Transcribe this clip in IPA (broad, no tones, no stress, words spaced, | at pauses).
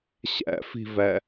ɕæ̰fi̤væ